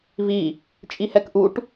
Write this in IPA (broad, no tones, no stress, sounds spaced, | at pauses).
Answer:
v i | t͡ʃʼ i h ɛ k ʔ u ʈ